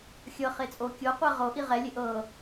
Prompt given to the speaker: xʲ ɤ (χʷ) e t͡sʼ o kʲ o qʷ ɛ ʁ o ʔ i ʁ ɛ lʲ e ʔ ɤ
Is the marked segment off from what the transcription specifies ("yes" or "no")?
yes